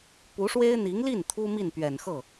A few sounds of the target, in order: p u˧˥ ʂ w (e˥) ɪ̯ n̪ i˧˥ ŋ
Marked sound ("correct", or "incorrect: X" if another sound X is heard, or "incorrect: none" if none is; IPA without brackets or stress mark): correct